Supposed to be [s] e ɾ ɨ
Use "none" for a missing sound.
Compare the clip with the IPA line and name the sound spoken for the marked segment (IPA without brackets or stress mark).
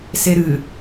s